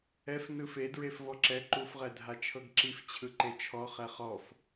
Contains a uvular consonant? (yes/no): yes